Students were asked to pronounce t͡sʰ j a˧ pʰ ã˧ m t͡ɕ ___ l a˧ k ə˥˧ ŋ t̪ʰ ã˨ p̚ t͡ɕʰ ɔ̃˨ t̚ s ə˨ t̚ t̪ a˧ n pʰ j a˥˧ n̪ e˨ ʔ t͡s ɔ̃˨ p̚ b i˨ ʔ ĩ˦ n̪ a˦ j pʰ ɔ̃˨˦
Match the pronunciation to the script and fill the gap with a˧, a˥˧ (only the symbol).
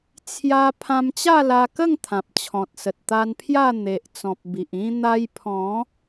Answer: a˥˧